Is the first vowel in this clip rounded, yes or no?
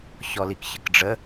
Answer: yes